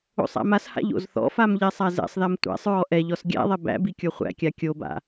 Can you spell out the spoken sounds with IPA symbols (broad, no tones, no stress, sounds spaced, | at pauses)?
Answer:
o̰ sˤ æ̰ m a s h a̰ ʎ o̰ z θ ɔ̰ f a m ʎ ɛ sˤ a z ɛ̰ sˤ ð a m tʷ æ̰ sˤ ɹ ɔ ʔ ɛ ʎ ɔ s ɡʲ æ̰ ðˤ ɛ b æ̰ b i kʲ o χʷ æ̰ kʲ a kʲ o b a̰